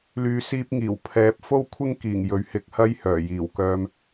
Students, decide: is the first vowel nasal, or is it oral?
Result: oral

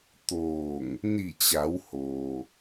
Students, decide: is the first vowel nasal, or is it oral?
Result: oral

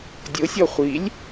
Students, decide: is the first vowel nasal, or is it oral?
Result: oral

